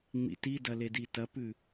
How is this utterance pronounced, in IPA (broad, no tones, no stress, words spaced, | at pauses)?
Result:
ŋ͡mḭtidɐ leditɐpʉ